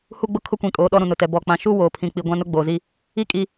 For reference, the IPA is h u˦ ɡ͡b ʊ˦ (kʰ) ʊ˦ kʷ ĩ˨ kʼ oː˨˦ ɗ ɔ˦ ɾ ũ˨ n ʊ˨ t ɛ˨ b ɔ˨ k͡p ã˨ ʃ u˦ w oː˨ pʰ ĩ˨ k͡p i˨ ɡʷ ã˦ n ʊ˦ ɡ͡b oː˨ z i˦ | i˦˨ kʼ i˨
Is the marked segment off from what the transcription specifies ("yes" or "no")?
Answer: no